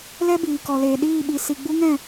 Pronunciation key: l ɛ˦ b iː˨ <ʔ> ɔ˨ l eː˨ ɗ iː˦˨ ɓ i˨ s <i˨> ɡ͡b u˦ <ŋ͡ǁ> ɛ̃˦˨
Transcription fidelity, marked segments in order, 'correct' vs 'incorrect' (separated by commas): incorrect, correct, incorrect